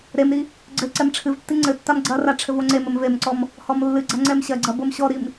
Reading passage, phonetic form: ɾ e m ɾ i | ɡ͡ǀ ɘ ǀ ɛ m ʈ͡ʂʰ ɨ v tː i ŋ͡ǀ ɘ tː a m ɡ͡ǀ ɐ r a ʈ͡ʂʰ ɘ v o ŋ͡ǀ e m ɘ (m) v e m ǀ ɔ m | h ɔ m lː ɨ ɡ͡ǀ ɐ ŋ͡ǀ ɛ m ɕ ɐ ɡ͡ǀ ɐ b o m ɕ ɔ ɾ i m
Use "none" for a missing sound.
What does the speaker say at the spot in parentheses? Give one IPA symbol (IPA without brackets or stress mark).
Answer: m